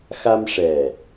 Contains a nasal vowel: no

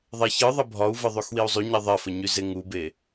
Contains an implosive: no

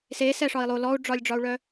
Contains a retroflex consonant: yes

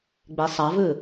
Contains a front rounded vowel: no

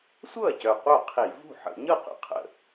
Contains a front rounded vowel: yes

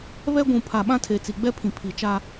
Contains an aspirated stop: yes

